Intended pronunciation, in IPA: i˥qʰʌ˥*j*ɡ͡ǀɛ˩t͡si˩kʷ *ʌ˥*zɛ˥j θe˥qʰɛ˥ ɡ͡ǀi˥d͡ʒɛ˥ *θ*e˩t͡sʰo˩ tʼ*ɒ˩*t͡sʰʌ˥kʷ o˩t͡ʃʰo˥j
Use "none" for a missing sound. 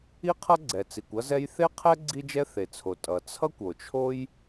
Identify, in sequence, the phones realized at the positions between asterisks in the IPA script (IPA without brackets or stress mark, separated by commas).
none, ʌ˥, θ, ʌ˩